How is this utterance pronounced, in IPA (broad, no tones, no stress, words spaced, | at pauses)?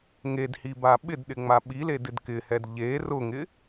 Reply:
ŋedhiba ɓɪdɗɪŋ͡ma ɓiledɪd kɪhɛd ʎe rʊŋɪ